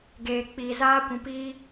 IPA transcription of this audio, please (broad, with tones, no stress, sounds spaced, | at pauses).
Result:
ɡ eː˨ k͡p iː˨ z aː˦ kʷ ũ˨ p iː˦